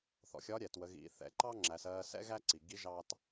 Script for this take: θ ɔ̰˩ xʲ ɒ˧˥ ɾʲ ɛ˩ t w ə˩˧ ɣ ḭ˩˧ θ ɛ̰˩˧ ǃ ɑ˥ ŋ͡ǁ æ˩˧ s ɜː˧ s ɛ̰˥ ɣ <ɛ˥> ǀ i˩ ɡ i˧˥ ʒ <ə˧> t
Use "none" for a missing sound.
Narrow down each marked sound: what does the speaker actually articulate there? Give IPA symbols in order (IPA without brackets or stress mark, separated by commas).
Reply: æ˥, ɑ˧